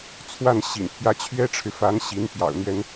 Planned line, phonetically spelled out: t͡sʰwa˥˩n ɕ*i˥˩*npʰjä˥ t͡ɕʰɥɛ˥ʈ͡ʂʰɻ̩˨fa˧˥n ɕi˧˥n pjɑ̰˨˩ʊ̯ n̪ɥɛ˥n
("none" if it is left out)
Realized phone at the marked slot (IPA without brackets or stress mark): ḭ˨˩